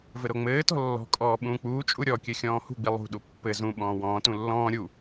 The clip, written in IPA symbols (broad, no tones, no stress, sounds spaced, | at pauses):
v ɘ ɾ o ŋ͡m ɘː t ɔ̤ lː ɔ̤ kʼ ɔː ɓ ũː k͡p uː t͡ʃʼ u ɾʲ ɔ kʲ ɘ xʲ ɔ̃ː h ṳ ɡ͡b i lˠ ṳ ɗ u pː ɘ z ũ ɓ ɔ̃ː w ɔ̃ː t ũ lː ɔ̃ː ɾʲ u